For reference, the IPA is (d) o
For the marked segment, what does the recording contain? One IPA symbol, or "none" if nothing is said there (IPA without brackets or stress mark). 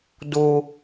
d